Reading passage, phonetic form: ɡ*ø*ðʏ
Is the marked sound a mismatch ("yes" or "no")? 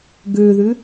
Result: no